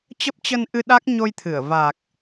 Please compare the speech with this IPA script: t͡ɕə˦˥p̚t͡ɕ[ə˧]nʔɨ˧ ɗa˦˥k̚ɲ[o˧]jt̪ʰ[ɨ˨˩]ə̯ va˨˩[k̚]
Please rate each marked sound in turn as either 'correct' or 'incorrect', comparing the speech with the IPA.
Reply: correct, correct, incorrect, correct

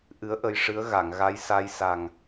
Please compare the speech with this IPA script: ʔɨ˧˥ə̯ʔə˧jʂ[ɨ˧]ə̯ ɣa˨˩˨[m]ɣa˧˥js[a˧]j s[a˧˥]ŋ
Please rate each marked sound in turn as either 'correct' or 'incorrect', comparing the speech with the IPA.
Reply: incorrect, incorrect, correct, incorrect

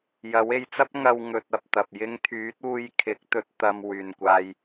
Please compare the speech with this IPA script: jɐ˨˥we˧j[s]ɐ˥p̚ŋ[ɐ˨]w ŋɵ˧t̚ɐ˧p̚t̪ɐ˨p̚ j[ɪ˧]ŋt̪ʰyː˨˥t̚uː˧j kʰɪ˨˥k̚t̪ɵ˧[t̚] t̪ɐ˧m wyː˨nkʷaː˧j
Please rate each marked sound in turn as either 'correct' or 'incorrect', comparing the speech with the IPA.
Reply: incorrect, incorrect, correct, correct

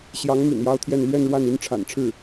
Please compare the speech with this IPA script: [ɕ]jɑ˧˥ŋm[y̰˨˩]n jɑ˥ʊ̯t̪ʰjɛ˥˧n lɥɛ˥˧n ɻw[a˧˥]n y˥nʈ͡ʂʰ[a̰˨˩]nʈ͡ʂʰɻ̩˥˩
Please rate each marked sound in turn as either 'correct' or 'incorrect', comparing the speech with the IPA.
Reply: correct, correct, incorrect, correct

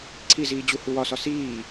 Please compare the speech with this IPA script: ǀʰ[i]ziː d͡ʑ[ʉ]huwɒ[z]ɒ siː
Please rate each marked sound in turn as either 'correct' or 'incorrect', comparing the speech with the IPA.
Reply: correct, incorrect, incorrect

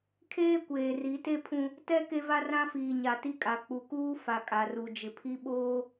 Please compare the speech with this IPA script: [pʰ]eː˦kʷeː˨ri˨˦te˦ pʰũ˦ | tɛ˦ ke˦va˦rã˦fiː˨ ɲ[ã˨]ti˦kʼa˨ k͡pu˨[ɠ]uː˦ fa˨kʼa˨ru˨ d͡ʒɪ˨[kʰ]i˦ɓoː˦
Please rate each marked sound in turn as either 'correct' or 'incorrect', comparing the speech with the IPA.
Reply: incorrect, incorrect, incorrect, incorrect

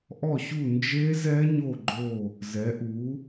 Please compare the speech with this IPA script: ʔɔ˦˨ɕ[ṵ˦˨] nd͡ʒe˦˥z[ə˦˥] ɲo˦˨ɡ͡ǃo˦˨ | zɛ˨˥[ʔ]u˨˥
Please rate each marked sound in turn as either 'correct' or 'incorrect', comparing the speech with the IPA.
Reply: incorrect, incorrect, correct

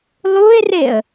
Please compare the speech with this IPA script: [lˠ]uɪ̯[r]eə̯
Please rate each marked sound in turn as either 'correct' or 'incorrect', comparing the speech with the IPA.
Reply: correct, correct

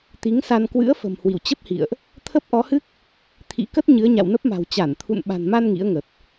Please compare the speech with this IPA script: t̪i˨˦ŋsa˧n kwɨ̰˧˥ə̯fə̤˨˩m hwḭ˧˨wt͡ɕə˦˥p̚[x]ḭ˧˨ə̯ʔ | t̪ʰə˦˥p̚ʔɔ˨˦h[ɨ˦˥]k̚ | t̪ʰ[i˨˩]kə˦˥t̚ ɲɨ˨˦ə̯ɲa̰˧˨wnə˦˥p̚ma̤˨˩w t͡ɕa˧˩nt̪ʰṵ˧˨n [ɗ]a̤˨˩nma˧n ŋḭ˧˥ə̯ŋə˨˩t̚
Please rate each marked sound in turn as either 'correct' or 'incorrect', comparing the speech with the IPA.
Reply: incorrect, correct, incorrect, incorrect

